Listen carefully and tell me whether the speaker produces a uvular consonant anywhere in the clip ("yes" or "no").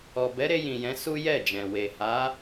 no